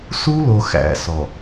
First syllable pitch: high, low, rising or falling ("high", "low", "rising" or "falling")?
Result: high